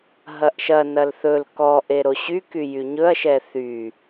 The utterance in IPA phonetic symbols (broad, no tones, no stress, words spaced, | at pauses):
ɦɐʔʃɐnɐl θɵl kɔʔe ɾoɕyky jyɲɵɐ̯ʃɛ θy